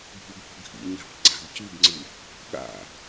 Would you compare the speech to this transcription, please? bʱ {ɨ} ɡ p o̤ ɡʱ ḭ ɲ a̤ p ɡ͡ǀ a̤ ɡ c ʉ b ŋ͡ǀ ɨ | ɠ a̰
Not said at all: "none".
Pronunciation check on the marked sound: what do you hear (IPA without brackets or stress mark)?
ʉ